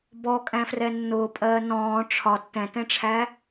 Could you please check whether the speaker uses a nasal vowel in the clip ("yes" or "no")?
yes